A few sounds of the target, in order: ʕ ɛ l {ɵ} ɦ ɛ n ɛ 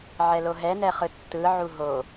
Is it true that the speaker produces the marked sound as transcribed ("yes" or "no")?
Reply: no